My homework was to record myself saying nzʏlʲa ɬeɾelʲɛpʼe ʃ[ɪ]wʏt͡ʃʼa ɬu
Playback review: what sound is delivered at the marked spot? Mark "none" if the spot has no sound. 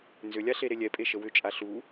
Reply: ə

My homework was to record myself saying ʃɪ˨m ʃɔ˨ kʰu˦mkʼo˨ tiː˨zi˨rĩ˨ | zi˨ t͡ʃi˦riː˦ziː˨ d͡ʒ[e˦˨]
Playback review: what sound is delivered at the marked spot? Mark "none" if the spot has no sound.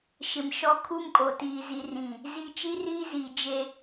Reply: e˦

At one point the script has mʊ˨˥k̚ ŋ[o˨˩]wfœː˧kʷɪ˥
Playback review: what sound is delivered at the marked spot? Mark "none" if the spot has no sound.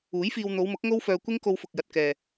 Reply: o˥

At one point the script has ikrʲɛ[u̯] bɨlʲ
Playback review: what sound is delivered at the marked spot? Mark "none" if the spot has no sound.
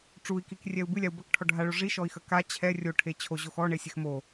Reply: u̯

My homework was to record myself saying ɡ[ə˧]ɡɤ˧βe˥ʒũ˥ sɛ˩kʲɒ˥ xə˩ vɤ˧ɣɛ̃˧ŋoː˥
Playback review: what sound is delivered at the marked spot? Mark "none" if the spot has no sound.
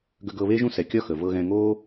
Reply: ə˧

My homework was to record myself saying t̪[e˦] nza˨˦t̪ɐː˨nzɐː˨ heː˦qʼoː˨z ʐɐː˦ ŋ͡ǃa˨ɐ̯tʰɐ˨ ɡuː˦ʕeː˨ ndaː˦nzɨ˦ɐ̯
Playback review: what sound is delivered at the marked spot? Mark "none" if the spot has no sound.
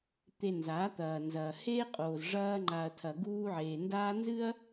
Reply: e˨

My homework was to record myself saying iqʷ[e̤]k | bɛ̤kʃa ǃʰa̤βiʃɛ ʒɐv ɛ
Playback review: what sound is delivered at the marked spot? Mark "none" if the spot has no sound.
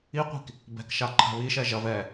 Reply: i̤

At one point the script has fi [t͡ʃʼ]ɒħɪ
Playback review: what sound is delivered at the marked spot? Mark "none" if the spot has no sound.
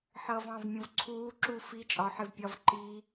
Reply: t͡ʃʼ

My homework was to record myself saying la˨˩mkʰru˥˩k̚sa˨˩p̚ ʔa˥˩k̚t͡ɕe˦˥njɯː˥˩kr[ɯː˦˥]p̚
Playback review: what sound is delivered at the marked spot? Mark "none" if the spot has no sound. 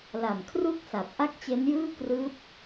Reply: ɯː˦˥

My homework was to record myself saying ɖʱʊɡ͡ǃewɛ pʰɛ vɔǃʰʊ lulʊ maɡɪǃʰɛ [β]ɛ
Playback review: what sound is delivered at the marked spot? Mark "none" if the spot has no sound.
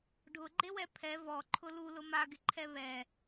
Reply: β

